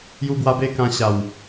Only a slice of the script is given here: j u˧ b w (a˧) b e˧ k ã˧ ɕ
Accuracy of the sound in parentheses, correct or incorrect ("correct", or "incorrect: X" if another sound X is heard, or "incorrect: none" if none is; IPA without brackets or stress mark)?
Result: correct